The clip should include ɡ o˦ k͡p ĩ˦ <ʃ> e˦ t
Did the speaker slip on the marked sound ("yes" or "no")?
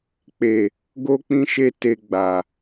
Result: no